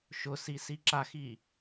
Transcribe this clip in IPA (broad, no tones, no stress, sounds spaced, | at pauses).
ʃ ʊ s i s i ǁ a x i